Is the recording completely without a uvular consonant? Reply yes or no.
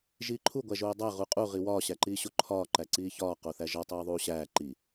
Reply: no